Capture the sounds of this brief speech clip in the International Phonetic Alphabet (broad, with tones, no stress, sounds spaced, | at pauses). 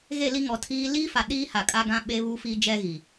ɣ e˦˨ l i˦ ŋ ɔ˨ tʰ iː˦ l iː˦ f a˨ ɗ iː˦ h a˨ kʼ a˦ ɡ ã˦ ɓ e˦ β u˦ f iː˦ d͡ʒ ɛ˦ ɣ i˨